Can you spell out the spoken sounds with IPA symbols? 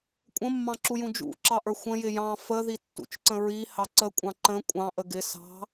kʷʼ ə̃ mː ɑ̃ ǁ u j ũ d͡ʒ ṵ ǁ ɑ ʔ ə˞ xʷ ə̃ j ɪ j ɑ̃ f ə ð i tː ṵ t͡ʃ ǀ ə̃ ɹ i h ɑ ǀ ə kʷʼ ɑ̃ ǃ ə̃ kʷʼ ɑ̃ ʔ ə ɡ ɪ s ɑ̤

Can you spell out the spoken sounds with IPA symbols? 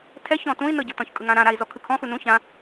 tʰ ɛ ç ɔ̃ t ũ i̯ n ɤ ɟ ɤ t ɔ̃ ç kʼ ɯ ŋ ã ɾ ã ɾ a i̯ z ɔ kʰ ɯ kʰ ɔ̃ x u n ũ ç ã

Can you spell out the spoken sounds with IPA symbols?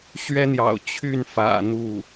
ɕ ɥ ɛ˥ n̪ j ɑ̰˨˩ ʊ̯ t͡ɕʰ y˥˩ n f ä̰˨˩ n̪ u˥˩

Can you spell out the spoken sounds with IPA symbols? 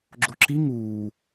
ɡ͡ǁ o ǁ i ŋ uː

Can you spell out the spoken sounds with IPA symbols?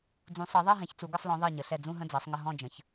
d͡z ũ˩˧ sˤ ɜ˩˧ ðˤ ɜ˦˨ ɦ ɛ̃˩˧ ç t͡s u˩˧ ɡ ə˦˨ sˤ l ɔ̃˩˧ ðˤ ɜ˦˨ ɲ ə˩˧ ɬ ɛ˦˨ d͡z ũ˦˨ ɦ ə̃˦˨ d͡z ɜ˩˧ sˤ ŋ ə˦˨ ɦ ɔ̃˦˨ d͡ʒ ə̃˩˧ ç

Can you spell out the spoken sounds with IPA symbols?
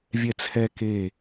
vʲ ɛ t͡sʰ ɛ k e

